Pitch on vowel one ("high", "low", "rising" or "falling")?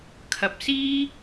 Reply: low